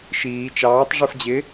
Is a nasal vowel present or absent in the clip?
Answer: absent